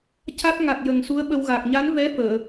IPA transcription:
c a˦˥ t̚ ŋ a˨˩ t̚ j ə˨˩ ŋ s u˧˥ ə̯ ɓ ə˧ w ɣ aː˨˩ k̚ ɲ a˧˥ n v ɛ˧˥ f əː˨˩˨

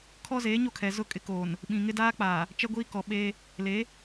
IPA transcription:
kʰ ɔ˦ z eː˨˦ ɲ o˦˨ kʰ ɛ˨ z ʊ˦˨ kʼ ɪ˦ k oː˨ n | ɓ ĩ˨ ŋ ɪ˦ d aː˦ k͡p aː˨ | t͡ʃ ɛ˦ ɡʷ iː˦ k ɔ˨ ɓ eː˦ | l e˨˦

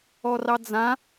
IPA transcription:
ɔ r ɑ d͡z ã

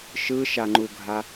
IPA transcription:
ʃ ɯ ʃ a ŋ͡ǃ u ɡʱ a

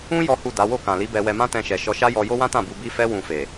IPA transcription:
ũ˦ j ɔ˦ h u˦˨ d a˨˦ w o˦˨ k ã˨ l i˨˦ b ɛ˧ w ɛ˧ m ã˦ t ɛ̃˧ ʃ ɛ˨ ʃ ɔ˧ ʃ a˦ j ɔ˧ j o˦ w ã˦ t ã˦˨ b u˧ b i˦ f ɛ˦ w ũ˧ f e˨

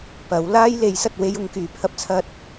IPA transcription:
p ɐ˨˥ w l aː˥ j l e˨˥ j s ɐ˧ t̚ w e˥ j ʊ˨˧ ŋ k yː˨ pʰ ɐ˥ p̚ t͡sʰ ɐ˥ t̚

